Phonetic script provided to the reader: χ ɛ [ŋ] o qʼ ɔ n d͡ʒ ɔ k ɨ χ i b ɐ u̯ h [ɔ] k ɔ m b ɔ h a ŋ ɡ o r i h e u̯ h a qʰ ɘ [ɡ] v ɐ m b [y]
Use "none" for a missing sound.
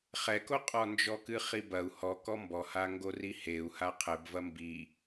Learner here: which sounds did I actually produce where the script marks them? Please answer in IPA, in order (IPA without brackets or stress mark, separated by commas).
k, ɔ, b, i